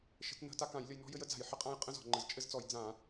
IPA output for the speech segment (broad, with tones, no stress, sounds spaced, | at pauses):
ʃ ə̤˧˩˧ t n ə̤˧˩˧ t a˦ k ã˧˩˧ j lʲ ə˦ j n ɔ̤˦ j ɘ˦ j ə˦ d͡z a̤˧˩˧ j ħ ə˧˩˧ qʼ ã˦ j qʼ ə̃˦ z ɔ̤˧˩˧ ŋ͡ǃ ə˧˩˧ z t͡ʃʼ ɘ˦ z t͡s ɔ˧˩˧ j d͡z ã˧˩˧